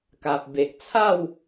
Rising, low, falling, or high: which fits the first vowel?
low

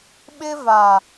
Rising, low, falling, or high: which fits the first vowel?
high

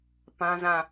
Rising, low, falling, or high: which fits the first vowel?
high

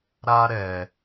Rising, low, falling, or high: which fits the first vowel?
high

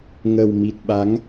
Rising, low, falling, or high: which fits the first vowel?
low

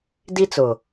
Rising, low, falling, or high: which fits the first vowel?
high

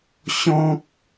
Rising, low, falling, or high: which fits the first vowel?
high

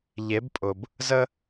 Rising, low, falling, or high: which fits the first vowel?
rising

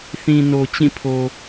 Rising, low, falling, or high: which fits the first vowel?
low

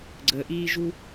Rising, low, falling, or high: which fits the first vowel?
low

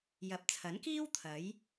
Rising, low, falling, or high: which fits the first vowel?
rising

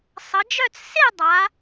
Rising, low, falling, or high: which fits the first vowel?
rising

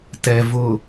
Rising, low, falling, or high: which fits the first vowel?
low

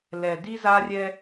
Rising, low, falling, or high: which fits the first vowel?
low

